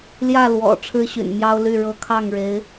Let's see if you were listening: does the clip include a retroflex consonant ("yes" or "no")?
yes